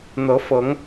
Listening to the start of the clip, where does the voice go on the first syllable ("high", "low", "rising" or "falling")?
rising